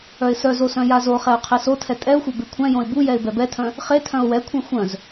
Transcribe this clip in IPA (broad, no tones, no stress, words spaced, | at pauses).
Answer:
œɪ̯sœzo sœ̃jazoχɛʊ̯ qʰesotʰɛ tʼɛʊ̯xʷɛ bekʷʰɛ̃jõɪ̯ bu jɛɪ̯bɛbɛtʰœ̃ | χe tʰœ̃ʊ̯wɛkʷʰɛ̃ xʷœ̃z